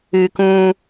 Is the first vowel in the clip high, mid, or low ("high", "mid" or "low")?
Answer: high